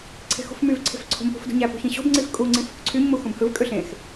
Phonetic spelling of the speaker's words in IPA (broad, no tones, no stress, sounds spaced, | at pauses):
ǀʰ e̤ x ṳ f m y v ǀʰ e̤ f ǀʰ o̤ m p ṳ f d ṳ ɲ æ p ṳ ç ĩ ɕ o̤ b ŋ͡ǀ i f kʼ u ŋ͡ǀ ĩ f o k ǀʰ y ɲ m u x ũ b h ɯ v kʼ ø ɬ ẽ x